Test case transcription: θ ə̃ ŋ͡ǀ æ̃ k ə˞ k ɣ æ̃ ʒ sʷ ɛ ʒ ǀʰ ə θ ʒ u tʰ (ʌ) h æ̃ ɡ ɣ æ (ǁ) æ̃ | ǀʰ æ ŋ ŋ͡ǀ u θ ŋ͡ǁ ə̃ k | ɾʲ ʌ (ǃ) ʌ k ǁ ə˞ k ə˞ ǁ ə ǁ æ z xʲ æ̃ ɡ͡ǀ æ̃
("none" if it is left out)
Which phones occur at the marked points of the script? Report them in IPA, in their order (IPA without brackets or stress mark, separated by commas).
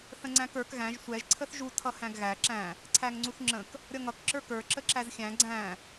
ʌ, ǁ, ŋ